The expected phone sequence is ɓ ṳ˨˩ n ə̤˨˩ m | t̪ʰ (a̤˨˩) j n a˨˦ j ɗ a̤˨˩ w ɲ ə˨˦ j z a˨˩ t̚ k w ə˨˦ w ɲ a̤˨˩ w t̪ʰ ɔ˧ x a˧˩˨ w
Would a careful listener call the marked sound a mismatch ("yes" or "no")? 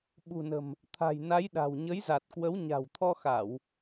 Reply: no